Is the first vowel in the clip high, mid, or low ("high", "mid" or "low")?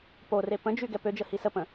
mid